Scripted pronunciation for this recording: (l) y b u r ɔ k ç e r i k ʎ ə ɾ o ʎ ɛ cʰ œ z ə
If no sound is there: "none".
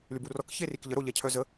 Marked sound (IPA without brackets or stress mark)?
l